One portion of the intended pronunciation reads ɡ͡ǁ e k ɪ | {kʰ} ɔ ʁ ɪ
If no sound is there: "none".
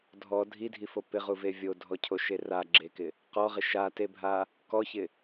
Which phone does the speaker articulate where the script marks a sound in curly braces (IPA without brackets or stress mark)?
q